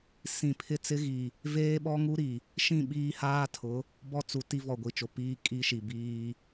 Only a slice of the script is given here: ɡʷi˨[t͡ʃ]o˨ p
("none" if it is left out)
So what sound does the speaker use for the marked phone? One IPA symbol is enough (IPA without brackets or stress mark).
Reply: t͡ʃ